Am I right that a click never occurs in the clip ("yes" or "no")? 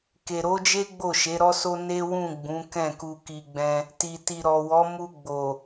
yes